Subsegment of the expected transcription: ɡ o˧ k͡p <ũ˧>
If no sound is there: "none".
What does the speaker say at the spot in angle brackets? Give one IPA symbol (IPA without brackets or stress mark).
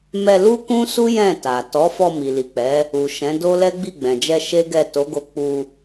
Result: u˧